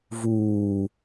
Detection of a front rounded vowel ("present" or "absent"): absent